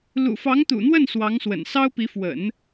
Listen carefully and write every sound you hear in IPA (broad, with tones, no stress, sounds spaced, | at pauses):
l ṵ˨˩ f ɑ˧˥ ŋ t̪ ṵ˨˩ n̪ w ə˥˩ n s w ɑ˧˥ ŋ s w ə̰˨˩ n s ɑ˥ ʊ̯ p i˧˥ f w ə̰˨˩˦ n